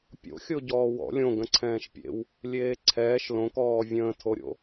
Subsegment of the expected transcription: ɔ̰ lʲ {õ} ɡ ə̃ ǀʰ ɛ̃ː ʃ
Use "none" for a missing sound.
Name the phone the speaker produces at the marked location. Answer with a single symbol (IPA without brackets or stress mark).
õ